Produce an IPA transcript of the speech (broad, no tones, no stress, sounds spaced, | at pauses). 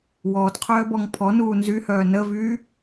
w ɔː t qʰ œː b ɔ ŋ pʰ ɔ n uː n z y h œː n ə v yː